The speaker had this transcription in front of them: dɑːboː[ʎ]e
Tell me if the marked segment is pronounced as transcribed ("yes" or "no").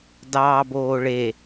no